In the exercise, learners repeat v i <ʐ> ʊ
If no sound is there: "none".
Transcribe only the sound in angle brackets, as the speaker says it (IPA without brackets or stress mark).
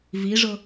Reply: ʐ